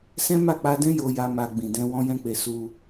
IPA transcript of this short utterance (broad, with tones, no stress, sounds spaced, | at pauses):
s ɛ̃˦ m a˦˨ k͡p a˧ d ɛ̃˦ j o˧ j a˧ m a˧ ɡ͡b ĩ˨ d ɛ̃˧ w ɔ̃˦ j ɛ̃˦ k͡p e˧ s u˧